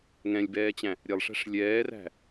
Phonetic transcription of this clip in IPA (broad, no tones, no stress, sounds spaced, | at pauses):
ŋ ɛ̃ lʲ b ɛː t͡ɕ æ̃ | ɾʲ ɛ lˠ ʂ æ̤ ʂ lʲ ɛː r æ̤